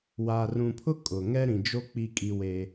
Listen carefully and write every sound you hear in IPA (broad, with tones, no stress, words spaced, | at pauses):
waː˨rũ˨pʰʊ˦ kʼʊ˨ ŋɛ˦ɾĩ˨d͡ʒo˦ k͡pi˦kʼi˦weː˦